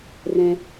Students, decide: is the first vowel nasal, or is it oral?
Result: nasal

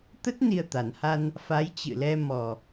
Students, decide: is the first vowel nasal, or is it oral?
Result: oral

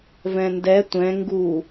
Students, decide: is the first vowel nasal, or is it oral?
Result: nasal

